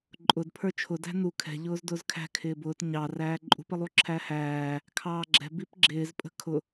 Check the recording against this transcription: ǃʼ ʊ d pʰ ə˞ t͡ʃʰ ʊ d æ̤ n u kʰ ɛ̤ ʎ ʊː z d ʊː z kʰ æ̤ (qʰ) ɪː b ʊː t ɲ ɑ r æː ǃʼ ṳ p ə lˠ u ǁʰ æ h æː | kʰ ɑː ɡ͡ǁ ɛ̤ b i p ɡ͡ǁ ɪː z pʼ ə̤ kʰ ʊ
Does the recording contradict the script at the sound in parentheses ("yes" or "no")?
yes